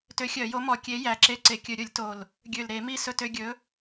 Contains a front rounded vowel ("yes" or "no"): yes